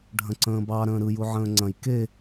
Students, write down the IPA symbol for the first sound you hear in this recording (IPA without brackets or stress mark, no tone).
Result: ɖʱ